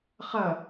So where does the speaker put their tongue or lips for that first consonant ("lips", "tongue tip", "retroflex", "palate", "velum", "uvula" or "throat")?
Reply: uvula